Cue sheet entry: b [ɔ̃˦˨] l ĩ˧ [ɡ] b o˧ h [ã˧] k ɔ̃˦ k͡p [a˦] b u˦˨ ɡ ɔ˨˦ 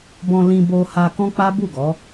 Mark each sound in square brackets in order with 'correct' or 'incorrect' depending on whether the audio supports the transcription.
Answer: incorrect: ɔ̃˧, incorrect: none, incorrect: a˧, correct

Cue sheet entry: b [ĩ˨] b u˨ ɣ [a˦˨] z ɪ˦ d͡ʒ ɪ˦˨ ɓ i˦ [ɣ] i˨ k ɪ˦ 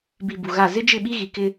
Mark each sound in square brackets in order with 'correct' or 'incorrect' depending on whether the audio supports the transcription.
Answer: incorrect: i˨, correct, correct

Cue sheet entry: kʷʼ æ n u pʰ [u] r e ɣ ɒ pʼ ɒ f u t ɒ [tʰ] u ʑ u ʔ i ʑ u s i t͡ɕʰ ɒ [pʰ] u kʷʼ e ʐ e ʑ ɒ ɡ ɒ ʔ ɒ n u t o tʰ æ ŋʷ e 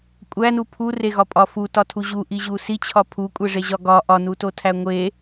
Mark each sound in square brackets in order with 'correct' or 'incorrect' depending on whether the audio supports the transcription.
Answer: correct, correct, correct

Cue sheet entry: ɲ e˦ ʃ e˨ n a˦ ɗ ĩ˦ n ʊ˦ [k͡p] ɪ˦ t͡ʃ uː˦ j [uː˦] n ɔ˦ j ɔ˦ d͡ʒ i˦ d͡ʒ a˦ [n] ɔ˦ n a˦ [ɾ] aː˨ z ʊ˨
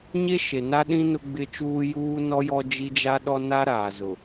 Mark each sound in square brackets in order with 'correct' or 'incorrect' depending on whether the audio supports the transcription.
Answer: incorrect: ɡ͡b, correct, incorrect: ɗ, correct

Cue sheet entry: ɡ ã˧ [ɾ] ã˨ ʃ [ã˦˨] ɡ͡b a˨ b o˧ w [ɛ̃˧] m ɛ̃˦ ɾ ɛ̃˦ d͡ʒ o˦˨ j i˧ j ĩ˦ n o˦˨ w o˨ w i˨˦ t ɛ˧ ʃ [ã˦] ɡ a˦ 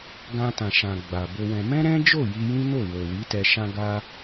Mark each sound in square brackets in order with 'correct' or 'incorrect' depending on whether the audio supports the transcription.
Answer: incorrect: t, incorrect: ã˨, correct, correct

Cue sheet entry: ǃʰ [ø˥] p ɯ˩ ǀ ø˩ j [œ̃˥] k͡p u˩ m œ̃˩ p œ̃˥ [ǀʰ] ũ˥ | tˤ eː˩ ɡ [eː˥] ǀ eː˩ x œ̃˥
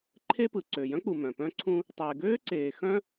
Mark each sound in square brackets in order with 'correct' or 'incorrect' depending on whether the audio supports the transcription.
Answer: incorrect: e˥, correct, correct, incorrect: øː˥

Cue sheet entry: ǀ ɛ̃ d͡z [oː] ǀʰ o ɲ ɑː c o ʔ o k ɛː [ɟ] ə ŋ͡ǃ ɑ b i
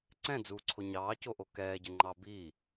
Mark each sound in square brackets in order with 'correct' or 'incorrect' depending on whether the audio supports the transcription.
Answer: incorrect: uː, correct

